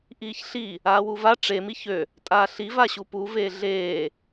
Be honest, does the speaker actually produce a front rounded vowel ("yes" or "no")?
yes